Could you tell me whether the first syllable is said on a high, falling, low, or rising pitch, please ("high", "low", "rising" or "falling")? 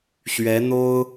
rising